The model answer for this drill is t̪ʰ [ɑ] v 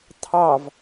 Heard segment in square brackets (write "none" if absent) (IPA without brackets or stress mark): ɑ